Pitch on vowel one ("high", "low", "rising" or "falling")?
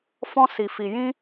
high